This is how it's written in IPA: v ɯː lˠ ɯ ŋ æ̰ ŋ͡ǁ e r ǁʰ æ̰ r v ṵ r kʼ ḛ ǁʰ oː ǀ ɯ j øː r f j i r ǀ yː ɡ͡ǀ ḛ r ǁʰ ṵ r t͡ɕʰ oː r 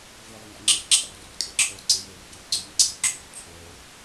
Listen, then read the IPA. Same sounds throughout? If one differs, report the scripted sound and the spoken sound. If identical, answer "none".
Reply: none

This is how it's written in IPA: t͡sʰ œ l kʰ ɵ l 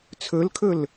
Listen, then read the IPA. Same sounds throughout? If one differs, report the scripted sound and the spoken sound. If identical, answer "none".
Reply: œ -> ɵ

